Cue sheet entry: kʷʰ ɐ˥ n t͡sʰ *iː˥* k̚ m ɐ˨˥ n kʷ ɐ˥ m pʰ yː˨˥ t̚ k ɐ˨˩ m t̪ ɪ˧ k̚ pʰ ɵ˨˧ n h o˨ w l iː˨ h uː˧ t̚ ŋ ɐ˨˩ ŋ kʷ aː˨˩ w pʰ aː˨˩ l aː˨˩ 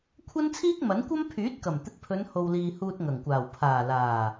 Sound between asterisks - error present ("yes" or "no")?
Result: no